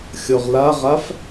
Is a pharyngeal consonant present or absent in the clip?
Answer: absent